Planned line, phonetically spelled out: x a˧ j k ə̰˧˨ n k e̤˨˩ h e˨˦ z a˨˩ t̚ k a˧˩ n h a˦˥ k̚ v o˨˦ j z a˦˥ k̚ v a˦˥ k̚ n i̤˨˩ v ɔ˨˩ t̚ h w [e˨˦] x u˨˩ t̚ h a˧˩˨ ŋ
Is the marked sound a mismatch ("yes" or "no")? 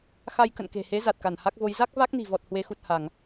no